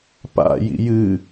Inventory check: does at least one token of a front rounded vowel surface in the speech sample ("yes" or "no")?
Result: no